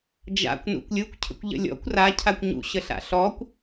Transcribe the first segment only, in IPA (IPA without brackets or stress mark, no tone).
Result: d͡ʒ